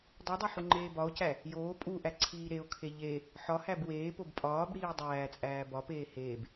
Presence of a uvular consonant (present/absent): absent